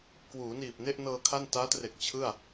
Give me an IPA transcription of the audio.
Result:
k w uː˩˦ n iː˨˩ p̚ n e˥˩ ʔ n ɤː˧ kʰ a˥˩ n t aː˦˥ t r e˨˩ k̚ t͡ɕʰ ɯ˥˩ a̯

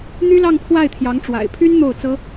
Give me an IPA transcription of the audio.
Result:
n̪ y˥ l ɑ˥˧ ŋ pʰ w a˥˩ ɪ̯ t̪ʰ j ɑ˧˥ ŋ ʈ͡ʂ w a̰˨˩ ɪ̯ pʰ y˥ n n̪ o˥˩ ʊ̯ t͡s ɤ˥

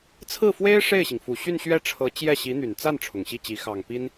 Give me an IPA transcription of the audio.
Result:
t͡sʰ ɹ̩˥˩ f w e˥ ɪ̯ ʂ e˥˩ ɪ̯ ɕ i˩ ŋ f u˨˩ ɕ y˥˧ n ɕ ɥ ɛ˥˩ ʈ͡ʂʰ ɤ˧˥ t͡ɕ j ɛ˥˩ ɕ i˧˥ n̪ y˨˩ n t͡s a˥˩ n ʈ͡ʂʰ ʊ˨˩ ŋ ɕ i˥˩ t͡ɕ i˧˥ x ɑ˨˩ ŋ p i˥ n

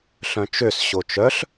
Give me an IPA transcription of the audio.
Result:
ɬ œ̃ t͡ʃ ø s ɕ o t͡ʃ œ ɬ

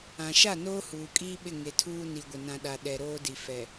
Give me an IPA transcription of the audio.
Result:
ã˨ ʃ a˦˨ n oː˦ h uː˨ kʼ iː˦ ɓ ɪ˦˨ ŋ e˨ tʰ uː˦ n i˨ ɡʷ ɪ˨ n ã˨ ɗ a˨ ɗ ɛ˨ ɾ oː˦ d i˨ f ɛ˨

